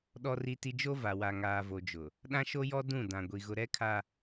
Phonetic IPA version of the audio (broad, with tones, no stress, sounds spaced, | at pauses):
ɗ ɔ˦ r i˦ t i˦ d͡ʒ o˦ v a˨ w a˨ ŋ aː˨ v o˨ d͡ʒ ʊ˨ | ɗ ã˦ ʃ o˦ j ɔ˦ d ũ˦˨ d ã˨ ɡʷ i˨ ɣ ʊ˨ ɾ ɛ˦ kʰ a˦